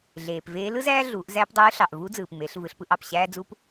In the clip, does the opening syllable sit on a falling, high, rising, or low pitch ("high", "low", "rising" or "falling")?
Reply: low